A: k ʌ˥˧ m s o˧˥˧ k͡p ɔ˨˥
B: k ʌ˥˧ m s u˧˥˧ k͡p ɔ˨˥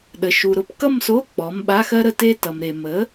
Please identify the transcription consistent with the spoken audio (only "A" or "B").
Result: A